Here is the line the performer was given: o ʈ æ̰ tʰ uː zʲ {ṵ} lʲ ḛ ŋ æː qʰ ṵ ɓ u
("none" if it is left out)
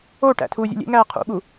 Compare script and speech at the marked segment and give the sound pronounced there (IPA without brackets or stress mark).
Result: ṵ